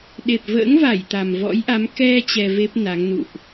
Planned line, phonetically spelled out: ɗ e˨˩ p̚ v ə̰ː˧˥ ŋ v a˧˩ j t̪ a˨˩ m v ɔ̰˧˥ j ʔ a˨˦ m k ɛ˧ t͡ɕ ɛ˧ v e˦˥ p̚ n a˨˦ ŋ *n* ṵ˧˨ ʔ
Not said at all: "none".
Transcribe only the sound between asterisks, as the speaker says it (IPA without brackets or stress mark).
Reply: n